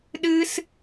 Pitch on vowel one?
high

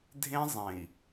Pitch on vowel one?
high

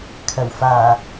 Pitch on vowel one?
low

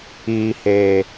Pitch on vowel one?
low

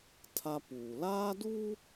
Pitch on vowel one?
high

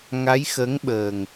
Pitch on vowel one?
rising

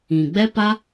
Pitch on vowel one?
low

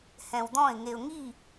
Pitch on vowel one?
low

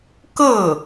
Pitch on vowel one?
falling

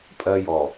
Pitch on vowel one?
high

